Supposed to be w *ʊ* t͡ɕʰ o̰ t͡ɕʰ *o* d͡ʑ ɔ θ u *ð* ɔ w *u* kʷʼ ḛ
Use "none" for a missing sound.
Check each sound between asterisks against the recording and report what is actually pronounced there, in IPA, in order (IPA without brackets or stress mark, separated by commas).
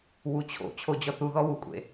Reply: u, o, ð, u